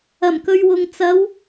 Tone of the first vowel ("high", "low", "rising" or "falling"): low